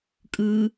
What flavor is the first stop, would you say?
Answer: ejective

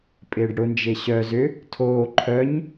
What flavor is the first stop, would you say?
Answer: ejective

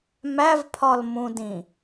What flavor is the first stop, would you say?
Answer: aspirated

